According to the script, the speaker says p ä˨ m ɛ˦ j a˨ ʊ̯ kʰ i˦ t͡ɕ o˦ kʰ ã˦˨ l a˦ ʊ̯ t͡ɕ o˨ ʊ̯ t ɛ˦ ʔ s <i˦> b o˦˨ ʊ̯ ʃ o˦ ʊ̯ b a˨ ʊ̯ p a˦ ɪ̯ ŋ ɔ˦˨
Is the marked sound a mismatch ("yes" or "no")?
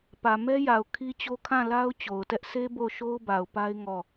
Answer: yes